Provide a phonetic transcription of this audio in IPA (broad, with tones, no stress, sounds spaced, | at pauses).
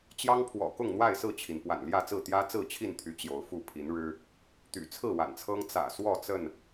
t͡ɕ j ɑ˦ ŋ pʰ w ɔ̰˨˩ k ʊ˥˨ ŋ n̪ w a˥˨ ɪ̯ s ɹ̩˥˨ t͡ɕʰ i˩ n p w a̰˨˩ n l j ä˥˨ t͡s ɹ̩˥˨ t̪ j ä˦ t͡s ɹ̩˥˨ t͡ɕʰ i˥˨ n t̪ʰ y˨˦ t͡ɕ j o˨˦ ʊ̯ f u˥˨ pʰ i˨˦ n ɻ ɻ̩˦ | t̪ y̰˨˩ t͡sʰ ɹ̩˥˨ w a̰˨˩ n t͡sʰ ɤ˦ ŋ t͡s ä̰˨˩ s w ɔ˥˨ t͡s ə˥˨ n